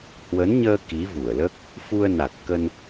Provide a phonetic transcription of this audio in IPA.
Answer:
hwə˨˦nɲəː˧ ki˨˦vu˧˩ə̯ləː˦˥k̚ | fu˧ə̯na˨˩t̚kə˧n

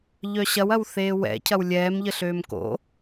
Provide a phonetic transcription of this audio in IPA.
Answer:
ʎœɕɐw ɐwθeːwɛ̰ cʰɐwlʲɛːmʎəɬøːm ko̰

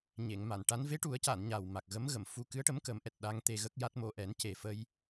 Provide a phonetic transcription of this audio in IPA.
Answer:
ɲe˨˩˨ŋma˨˩˨nʈa˧˥n ve˧˥ʈu˨˩˦ə̯ca˨˩˨n ɲa˨˩w ma˨˩k̚ɣə˧˥m ɣə˨˩˨mfu˧ kɨ˧˥ə̯ʈə˧˥mkə˨˩˦mʔɛ˨˩t̚ ɗa˧ŋ t̪e˧ɣə˦˥k̚ja˦˥t̚mo˧ ʔɛ˨˩˦nce˨˩fə˧j

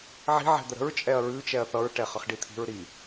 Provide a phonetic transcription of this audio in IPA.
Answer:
ʕi̤ʕɛ̤d̪ə ɾə̤ɹ t͡ʃʼɛɐ̯ɹʉt͡ʃɛɐ̯ θʌɹ ʈɛχʌχɖit̪ʰi̤ɹ ɾi

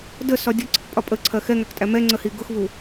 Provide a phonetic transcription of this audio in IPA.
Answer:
dəsɒ dʲʌǀəkpʼɒ pʼəǀʰɜ xɛŋæktʼæ mɛŋ͡ǀəhi ɡʊxvu

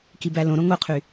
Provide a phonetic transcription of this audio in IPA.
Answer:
kibælõɾõ ŋoqʰy

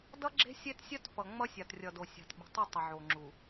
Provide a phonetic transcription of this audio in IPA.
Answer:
dʌ˦ɡ͡ǁe̤˦ sʲe˦tsʲœ˦t fʌ˨ ŋ͡mʌ˦sʲa˨trʲʌ˨ do˨sʲa̤˨tɓə̤˨tˤɪ˦˨ tˤɪ˨ʕo˨ŋ͡ǁu˨

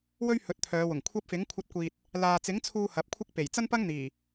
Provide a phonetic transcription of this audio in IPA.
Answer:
wɵ˥ɥhɵ˨˥t̚t̪ʰœː˨˧wʊ˨˩ŋ kʷʰɐ˥p̚ fɪ˨˥ŋkʷʰɐ˧t̚kʷiː˨t̚ | laː˨t͡sɪ˨˥ŋt͡sʰuː˧ hɐ˨˥p̚kʷʰɪ˥k̚ pe˨˩jt͡sɐ˥npɐ˥ŋ n̪iː˨˩

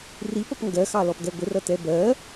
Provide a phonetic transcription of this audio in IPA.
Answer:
ripɒp ŋɡɜxɑlɔpɡɜ ɡʷərʌ tɛbɜ

